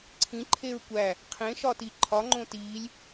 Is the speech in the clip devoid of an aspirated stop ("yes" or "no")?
no